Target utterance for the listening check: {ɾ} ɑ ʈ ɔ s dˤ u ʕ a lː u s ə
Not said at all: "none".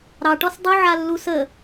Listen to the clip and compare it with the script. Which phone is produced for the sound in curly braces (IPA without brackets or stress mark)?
ɾ